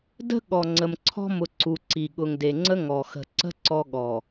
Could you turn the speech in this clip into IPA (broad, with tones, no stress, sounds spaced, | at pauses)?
d ə̤˦ ɠ ɔ˨ ŋ͡ǀ ə˨ m ǀʰ ɔ̤˦ m ʊ˨ ǀ u˨ ǀ i˨ ɠ ʊ˨ ŋ d e˨ ŋ͡ǀ ə˦ ŋ ɔ˨ x ə̤˨ ǀ ə̤˦ ǀ ɔ˦ ɠ ɔ˨